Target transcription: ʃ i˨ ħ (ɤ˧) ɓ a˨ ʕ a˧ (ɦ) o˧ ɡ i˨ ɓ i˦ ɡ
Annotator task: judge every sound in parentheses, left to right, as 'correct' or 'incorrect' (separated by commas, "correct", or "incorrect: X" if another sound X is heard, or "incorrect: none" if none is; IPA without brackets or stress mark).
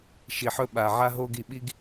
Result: incorrect: ɵ˧, correct